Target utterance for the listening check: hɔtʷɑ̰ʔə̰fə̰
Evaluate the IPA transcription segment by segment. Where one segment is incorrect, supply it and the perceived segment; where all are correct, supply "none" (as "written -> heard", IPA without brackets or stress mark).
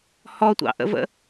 f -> v